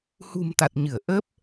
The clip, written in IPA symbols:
h ṳ˨˩ m t̪ a˨˩ t̚ ɲ ɨ˧˩ ə̯ ʔ əː˦˥ p̚

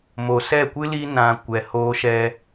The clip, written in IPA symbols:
m o˨ s ɛ˦˨ kʷ ɨ˦ l i˧ n ã˨ kʷ ɛ˨ h oː˧ ʃ ɛ˧

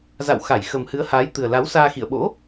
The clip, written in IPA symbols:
z a̰˧˨ w x a˧˩ j x ə˨˩ m h ɨ˨˦ ə̯ h aː˨˦ j t̪ ɨ˨˩ ə̯ l a˨˦ w s aː˧ x ḭ˧˨ ə̯ ɓ o̰˧˥

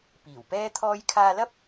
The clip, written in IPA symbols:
p iː˨˩ w p ɛː˥ t̪ʰ ɔː˥ j kʰ aː˧ l ɐ˥ p̚

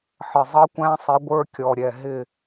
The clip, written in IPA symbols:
ħ ə˨˩ zˤ ʌ˦˥ kʷ æ̃˦˥ sˤ ɪ˨˥ ɡʷ ə˞˦˥ kʲ ɔ˨˩ ɾʲ ɛ˨˩ ɦ ɪ˦˨

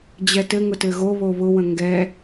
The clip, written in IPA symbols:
d͡ʑ ɛ t ɘ ŋ ʊ t ɘ ɣ o β o β ʊ w ə̃ ŋ ɡ ɛ

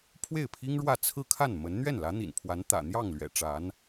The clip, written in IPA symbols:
pʰ w e˥˩ ɪ̯ pʰ i˥ ŋ ɻ w ä˥˧ t͡sʰ ɹ̩˥˧ kʰ a˥˩ n m ə˧˥ n n̪ ɥ ɛ˥˩ n l ä˧˥ n̪ ḭ˨˩ n pʰ w a˧˥ n t̪ ä̰˨˩ n̪ j ɑ˥˩ ŋ l ɥ ɛ̰˨˩ ʈ͡ʂ a˧˥ n

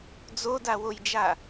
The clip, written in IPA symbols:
d͡z o d a w o j d͡ʒ a

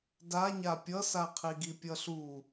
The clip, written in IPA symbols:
d a ɲ a pʲ ʌ s a qʰ i ɡ i pʲ ʌ ɬ u

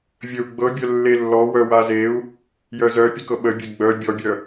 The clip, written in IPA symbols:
vʲ ə u̯ ɡ͡b ɤ bʲ œ lː e lː ɔ w œ w a z e u̯ | j œ z œ pʲ e k ɤ ɓ ə bʲ e ɡ͡b œ bʲ ɔ bʲ œ

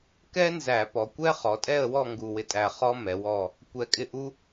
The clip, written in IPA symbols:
k ɛ˥ n z æ˧˩˧ p ɔ˩˧ kʷ ɛ˥ χ ɔ˩˧ tʼ ɛ˦˨ ə̯ w ɔ˦˨ ŋ ɡ u˦˨ w ɪ˥ tʼ æ˦˨ χ ɔ˥ m ɛ˩˧ w ɔ˦˨ | kʷ ɛ˧˩˧ kʼ ɪ˦˨ ʔ u˥

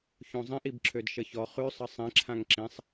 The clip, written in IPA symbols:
ç õ zˤ ĩ ʔ i b ǁʰ ø d ʃ ə ç ɔ χ ʉ sˤ ə sˤ ĩ ǁʰ ã ŋ ǁ ĩ sˤ

